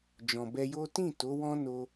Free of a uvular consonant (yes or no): yes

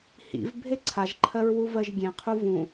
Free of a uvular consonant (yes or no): no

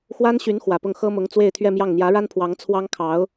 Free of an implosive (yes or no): yes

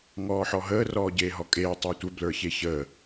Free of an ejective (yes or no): no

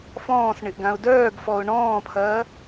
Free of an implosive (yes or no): yes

